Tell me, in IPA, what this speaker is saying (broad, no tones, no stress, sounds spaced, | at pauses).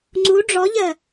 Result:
ŋ͡ǀ u ɖ͡ʐ ɔ ʎ ɜ